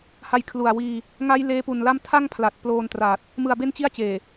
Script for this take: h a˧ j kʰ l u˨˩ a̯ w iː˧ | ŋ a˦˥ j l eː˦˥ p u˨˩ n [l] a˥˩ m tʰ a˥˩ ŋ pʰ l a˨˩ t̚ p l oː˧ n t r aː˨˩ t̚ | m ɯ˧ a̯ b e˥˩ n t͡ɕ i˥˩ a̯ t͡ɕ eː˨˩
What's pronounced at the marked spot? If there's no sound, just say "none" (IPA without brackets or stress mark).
l